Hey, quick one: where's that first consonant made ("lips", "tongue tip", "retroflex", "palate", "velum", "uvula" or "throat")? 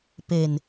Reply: lips